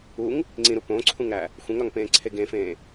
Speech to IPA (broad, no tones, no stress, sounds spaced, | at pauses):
u ŋ | ŋ͡ǀ ĩ ɾ u p õ ǀʰ ũ ŋ ɾ æ | xʷ ẽ ŋ ɾ ɒ ŋ p ẽː ǀʰ e ɡ ẽ f ẽː